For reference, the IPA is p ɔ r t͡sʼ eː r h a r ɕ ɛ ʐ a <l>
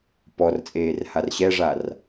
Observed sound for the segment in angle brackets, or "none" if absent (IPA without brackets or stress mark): r